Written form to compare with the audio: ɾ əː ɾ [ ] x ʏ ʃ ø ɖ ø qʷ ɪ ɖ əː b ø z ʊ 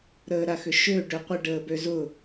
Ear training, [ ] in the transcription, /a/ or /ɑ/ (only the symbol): a